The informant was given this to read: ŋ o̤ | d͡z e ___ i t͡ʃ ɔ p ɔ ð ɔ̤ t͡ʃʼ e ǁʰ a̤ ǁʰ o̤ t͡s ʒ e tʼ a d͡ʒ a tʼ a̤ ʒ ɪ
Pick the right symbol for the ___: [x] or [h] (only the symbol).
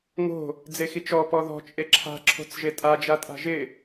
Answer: x